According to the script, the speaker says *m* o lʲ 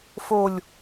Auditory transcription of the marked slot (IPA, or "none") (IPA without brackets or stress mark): f